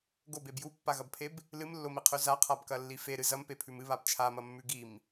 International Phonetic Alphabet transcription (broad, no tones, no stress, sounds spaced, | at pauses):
ɡ o b e b j u pː a ɣ ɐ b pʰ e b | l ɨ m lː o m i qʰ ʉ z a qʰ a b k ɐ lː i f e ɾ ɨ z ɐ m p e pʰ ʉ m ɨ β a b t͡ʃʰ a m ɐ mː ʉ ɡ i m